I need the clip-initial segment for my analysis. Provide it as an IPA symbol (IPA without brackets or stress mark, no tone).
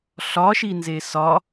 ɬ